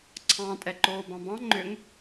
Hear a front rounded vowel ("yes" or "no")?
yes